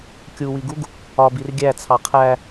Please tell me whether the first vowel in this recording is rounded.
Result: yes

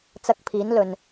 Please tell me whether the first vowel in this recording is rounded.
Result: no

